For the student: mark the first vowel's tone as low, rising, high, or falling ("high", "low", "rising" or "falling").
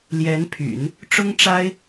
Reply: rising